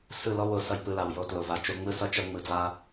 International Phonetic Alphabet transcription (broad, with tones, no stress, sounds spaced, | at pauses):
s ɯ˦˨ l ɔ˦ w o˨ s ʌ˧ j p ɯ˧ l a˨ w j o˧ t l o˨ v a˧ t͡ʃ o˧ ŋ͡m ɯ˦ s ʌ˦ t͡ʃ ʌ˦ ŋ͡m ɯ˧ d͡z a˦